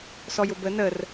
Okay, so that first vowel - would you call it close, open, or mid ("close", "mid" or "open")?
mid